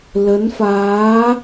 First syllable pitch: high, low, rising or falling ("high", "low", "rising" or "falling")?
rising